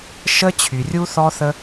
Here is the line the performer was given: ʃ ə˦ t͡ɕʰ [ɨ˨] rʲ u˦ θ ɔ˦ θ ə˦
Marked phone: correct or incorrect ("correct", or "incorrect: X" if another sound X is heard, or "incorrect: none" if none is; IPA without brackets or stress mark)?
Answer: incorrect: y˨